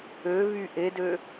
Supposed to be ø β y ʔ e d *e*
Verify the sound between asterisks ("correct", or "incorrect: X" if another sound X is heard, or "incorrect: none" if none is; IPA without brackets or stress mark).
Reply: incorrect: ø